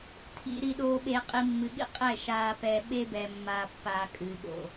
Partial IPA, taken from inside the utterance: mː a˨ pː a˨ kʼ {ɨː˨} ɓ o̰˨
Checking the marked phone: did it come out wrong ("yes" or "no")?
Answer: no